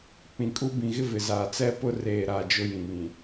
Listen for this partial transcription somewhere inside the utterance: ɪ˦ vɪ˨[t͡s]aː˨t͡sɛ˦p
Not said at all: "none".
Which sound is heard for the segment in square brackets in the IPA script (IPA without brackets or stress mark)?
z